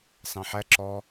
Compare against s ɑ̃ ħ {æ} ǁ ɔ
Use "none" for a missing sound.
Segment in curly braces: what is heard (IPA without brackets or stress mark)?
æ